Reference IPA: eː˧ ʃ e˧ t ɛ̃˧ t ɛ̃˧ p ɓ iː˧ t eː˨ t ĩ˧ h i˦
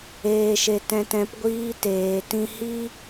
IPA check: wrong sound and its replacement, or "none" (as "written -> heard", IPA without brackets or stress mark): ɓ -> ɡʷ